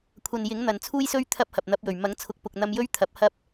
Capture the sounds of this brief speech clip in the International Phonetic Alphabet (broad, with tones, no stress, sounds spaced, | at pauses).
kʷʰ ɐ˨ n j ɪ˨˥ ŋ n̪ ɐ˨ n t͡sʰ uː˥ j s ɵ˥ ɥ t̪ʰ ɐ˥ p̚ h ɐ˨ p̚ n̪ ɐ˨˥ p̚ j ɵ˨˩ ɥ m ɐ˨˥ ŋ t͡sʰ ʊ˨˥ k̚ p ʊ˨ k̚ n̪ ɐ˧ m j ɵ˥ ɥ t̪ʰ ɐ˨˥ p̚ h ɐ˥ p̚